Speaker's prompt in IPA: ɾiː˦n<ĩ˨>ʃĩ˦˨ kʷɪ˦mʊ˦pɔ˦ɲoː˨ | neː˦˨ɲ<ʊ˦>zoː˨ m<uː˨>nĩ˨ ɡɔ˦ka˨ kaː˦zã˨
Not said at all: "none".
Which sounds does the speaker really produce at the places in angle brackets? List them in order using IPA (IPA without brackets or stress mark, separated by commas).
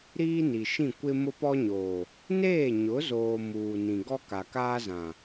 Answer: i˨, ʊ˨˦, uː˨